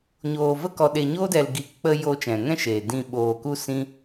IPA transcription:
ɲ oː˨ v ə˧ k ɔ˨ ɗ e˨ ɲ oː˦ d ɛ˨ l ɡ i˨˦ k k͡p ə˧ j oː˧ t͡ʃ ɛ̃˨ ŋ ɛ̃˦ ʃ eː˨ d ĩ˧ ɓ oː˨ k u˦ s ĩ˦

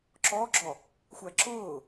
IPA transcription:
ǁ ɔː ɡ͡ǁ ɔ | xʷ æ ǁ ʊː

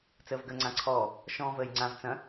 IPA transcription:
t͡s əː v ɡ əː ŋ͡ǀ ã ǀʰ ɔː | ʃ ɔ̃ː v əː j ŋ͡ǀ ã v t͡s ɐ̃

